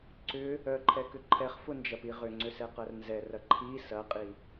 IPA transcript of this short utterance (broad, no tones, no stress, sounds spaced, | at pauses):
ǀ ʏ | œ ǃʰ ɛ k ʏ ǃʰ ɛ χ f ʊ n d͡ʒ ɐ p i ʁ ʏ ŋ͡ǀ ʏ s ɛ q ɐ r n z ɛ r ɐ ǃʰ i s ɐ qʼ i